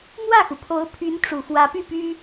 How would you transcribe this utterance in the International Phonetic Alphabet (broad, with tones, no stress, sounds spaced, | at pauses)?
m w ä˥˩ x u˩ pʰ o˧˥ ʊ̯ pʰ y˧˥ n ʈ͡ʂ u˨˩ f w ä˧˥ p y˥˩ p y˥